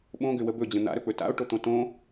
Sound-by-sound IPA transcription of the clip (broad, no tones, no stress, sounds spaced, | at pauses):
ɓ õ ɡ ʏ w ə b ɵ d͡ʑ ə̃ n̪ a̰ ɾ ɵ k͡p ɵ t a̰ o̯ ʈ o t̪ õ t õ